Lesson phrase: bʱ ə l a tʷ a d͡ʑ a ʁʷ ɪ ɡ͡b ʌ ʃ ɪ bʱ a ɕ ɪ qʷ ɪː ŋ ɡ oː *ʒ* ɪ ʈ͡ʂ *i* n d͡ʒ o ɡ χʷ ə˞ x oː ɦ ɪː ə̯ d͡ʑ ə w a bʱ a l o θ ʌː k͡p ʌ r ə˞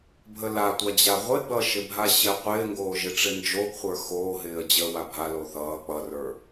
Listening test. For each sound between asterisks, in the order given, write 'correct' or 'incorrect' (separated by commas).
correct, incorrect